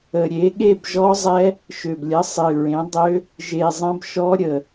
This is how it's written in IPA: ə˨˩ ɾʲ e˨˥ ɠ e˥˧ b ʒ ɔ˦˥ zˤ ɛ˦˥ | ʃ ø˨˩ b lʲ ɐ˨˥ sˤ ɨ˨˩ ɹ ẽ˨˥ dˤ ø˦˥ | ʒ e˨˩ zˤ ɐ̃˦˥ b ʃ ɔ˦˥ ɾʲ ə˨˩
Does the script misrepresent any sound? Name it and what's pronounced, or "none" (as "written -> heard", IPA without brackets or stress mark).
none